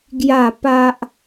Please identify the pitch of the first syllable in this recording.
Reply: falling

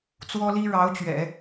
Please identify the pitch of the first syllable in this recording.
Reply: high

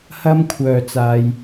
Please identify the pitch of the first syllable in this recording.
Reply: high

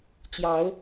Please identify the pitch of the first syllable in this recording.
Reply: rising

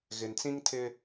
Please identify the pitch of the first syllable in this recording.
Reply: low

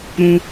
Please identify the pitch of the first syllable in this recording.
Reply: high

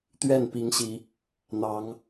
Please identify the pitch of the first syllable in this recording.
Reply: falling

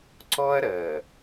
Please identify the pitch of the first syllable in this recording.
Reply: high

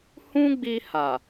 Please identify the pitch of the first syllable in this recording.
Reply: high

